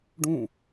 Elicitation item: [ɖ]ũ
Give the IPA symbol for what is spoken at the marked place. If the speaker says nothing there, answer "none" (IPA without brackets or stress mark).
ɖ